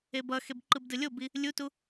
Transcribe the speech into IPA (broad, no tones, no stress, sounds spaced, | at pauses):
e b ʌ x e b ǃ ɯ b d ɯ lʲ o b i | lʲ u t u